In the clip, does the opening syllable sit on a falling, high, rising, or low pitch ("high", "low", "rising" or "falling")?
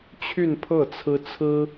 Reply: falling